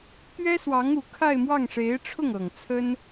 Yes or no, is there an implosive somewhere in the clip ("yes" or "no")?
no